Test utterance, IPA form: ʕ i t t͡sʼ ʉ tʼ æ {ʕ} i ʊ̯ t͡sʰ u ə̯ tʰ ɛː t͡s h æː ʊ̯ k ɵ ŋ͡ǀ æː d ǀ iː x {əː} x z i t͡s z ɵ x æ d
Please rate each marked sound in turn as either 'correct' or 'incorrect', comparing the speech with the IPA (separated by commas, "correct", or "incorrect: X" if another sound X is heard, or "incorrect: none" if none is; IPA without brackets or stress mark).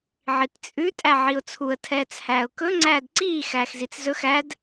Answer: correct, incorrect: æː